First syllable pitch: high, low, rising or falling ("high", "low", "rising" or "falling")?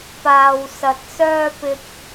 low